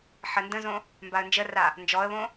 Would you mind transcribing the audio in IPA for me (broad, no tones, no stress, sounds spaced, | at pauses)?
ħ ə n d ə̃ z õ | m b a ə̯ n d͡ʒ ə r a | n d͡ʒ ɔ ə̯ β õ